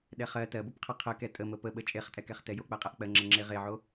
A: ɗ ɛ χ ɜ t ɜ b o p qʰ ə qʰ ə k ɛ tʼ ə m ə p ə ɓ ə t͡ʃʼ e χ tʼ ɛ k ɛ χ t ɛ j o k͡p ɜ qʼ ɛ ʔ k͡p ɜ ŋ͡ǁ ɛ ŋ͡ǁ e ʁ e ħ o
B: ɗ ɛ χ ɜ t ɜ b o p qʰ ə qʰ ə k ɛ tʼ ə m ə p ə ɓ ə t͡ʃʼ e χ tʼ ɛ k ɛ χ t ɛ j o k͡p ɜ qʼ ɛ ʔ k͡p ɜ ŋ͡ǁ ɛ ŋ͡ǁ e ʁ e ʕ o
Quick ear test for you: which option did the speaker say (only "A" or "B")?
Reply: B